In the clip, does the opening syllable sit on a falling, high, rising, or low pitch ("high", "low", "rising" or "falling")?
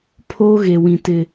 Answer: high